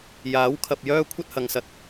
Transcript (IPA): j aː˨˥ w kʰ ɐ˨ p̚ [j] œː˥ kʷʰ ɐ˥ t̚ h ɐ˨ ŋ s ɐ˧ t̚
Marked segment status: correct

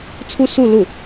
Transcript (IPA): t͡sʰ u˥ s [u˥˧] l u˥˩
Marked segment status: correct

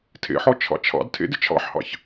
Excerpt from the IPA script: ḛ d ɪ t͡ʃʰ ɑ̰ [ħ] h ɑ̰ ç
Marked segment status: correct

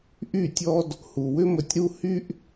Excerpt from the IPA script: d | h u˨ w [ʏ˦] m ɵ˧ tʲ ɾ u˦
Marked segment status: correct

